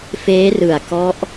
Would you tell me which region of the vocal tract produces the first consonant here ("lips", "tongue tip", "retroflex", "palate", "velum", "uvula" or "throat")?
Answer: lips